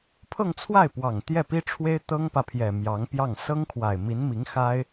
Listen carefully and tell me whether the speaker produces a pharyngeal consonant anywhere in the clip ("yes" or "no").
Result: no